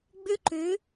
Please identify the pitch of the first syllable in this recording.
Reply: high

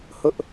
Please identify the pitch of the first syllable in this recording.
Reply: high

